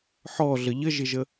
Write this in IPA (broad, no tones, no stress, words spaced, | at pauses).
ħɔɮə ʎəʒɪʒə